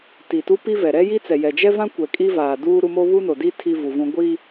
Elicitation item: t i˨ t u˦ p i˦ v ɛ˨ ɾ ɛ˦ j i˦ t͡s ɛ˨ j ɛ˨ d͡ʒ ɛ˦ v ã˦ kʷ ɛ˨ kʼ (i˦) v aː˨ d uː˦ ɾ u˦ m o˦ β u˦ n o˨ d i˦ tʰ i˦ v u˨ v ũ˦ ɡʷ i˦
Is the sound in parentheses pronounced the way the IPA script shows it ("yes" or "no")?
yes